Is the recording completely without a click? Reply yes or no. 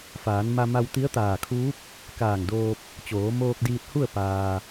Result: yes